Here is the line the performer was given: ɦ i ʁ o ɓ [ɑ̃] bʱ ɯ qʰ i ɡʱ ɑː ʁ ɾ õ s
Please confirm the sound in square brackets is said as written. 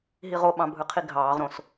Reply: yes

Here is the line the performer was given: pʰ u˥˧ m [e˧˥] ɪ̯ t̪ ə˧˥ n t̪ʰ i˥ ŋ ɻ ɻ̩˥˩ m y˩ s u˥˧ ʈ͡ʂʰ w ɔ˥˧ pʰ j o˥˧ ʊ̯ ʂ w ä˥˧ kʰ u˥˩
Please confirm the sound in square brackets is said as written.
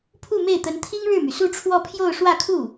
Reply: no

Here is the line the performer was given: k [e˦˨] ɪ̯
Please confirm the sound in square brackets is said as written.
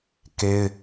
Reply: no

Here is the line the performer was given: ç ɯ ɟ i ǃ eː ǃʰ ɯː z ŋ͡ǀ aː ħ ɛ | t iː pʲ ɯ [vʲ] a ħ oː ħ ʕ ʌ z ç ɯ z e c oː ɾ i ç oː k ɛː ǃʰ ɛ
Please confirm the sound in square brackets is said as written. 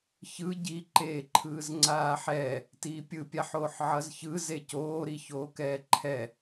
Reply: no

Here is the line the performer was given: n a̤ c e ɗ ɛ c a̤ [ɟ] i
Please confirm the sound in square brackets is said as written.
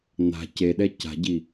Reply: yes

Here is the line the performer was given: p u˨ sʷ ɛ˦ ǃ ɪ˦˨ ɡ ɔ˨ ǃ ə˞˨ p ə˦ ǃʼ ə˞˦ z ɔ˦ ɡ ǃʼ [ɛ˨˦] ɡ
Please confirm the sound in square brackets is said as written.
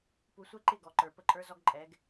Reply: yes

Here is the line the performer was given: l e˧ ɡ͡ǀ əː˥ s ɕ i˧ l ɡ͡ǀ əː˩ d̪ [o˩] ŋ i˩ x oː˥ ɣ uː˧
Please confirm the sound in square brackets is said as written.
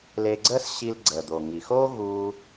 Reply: yes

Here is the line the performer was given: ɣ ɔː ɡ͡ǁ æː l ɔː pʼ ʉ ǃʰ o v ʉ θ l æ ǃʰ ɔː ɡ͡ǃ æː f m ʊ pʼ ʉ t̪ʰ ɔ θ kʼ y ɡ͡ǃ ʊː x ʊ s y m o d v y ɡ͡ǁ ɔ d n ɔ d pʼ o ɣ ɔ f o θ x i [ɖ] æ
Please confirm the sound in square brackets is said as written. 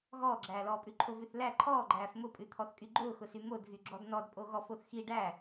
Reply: yes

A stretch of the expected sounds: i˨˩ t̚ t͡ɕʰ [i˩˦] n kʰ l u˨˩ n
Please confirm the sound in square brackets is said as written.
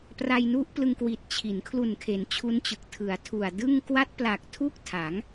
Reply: yes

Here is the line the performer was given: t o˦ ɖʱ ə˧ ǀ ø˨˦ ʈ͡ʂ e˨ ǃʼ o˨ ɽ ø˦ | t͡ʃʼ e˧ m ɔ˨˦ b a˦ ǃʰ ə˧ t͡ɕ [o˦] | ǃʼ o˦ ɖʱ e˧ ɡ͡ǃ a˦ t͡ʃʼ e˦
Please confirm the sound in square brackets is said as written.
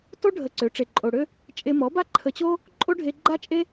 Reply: yes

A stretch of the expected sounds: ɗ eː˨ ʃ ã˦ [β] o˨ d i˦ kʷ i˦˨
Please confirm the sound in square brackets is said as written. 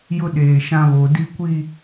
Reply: yes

